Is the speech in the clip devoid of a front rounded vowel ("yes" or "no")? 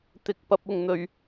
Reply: yes